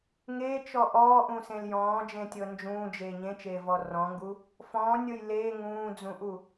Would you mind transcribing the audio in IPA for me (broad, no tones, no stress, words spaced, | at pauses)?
ŋeːt͡ʃɔ ʔɔːʔũsẽl jɔ̃ːd͡ʒẽtʲɤ nd͡ʒũːd͡ʒeː ɲẽt͡ʃeːvɔ rɔ̃ŋɡu | fɔ̃ːnʲɤj leː ŋũːd͡zũʔu